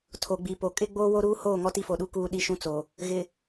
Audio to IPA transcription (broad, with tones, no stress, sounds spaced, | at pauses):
tʰ o˨ ɡ͡b i˨ p o˨ kʼ ɪ˦ ɡ͡b oː˦ w o˦ ɾ uː˦ h oː˦˨ ŋ ɔ˦ t i˦ f o˨ ɗ u˦ k uː˦ ɗ i˦ ʃ ũ˦ t͡s o˨ | ɣ ɪ˨